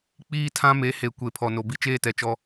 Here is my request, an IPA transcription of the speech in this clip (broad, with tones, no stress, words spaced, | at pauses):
k͡piː˦tʰã˦me˨˦he˨ kʷe˨ pʰɔ˨no˨ bi˦t͡ʃeː˦tɛ˨ t͡ʃɔ˦